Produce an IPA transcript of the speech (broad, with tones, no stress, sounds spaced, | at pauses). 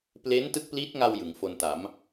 p l e˦˥ n t ɯ˦˥ k̚ p l i˦˥ t̚ ŋ a˧ w j ɯ˩˦ ŋ f o˧ n t a˩˦ m